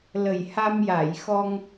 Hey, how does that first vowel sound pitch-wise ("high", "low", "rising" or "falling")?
low